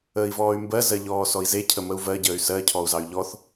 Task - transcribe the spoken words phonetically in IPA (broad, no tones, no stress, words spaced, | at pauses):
əːi̯vɔːy̯mbɜ zɜʎɔːsɔi̯ze cʰəməu̯vɜ ɟəːy̯sɜ cʰɔu̯zɑy̯ʎɔθ